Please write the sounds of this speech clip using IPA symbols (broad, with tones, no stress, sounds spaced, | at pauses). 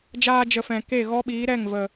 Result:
d͡ʒ aː˧ d͡ʒ ə˨ f ɛ̃˨ k e˦˨ ɣ ɔ˦ ɓ iː˨˦ ɾ ɛ˦˨ ŋ v ə˨